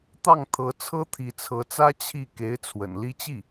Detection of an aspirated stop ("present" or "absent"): present